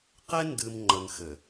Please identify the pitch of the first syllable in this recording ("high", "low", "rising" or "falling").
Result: high